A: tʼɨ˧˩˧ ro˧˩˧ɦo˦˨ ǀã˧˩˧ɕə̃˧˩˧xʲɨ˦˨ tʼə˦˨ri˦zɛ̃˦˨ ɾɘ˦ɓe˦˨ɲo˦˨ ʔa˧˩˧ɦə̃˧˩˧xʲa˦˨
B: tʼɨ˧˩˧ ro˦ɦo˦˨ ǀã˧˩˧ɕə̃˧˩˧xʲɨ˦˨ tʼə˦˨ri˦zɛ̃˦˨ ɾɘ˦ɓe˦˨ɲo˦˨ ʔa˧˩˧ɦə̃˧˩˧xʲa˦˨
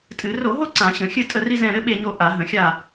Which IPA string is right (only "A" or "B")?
A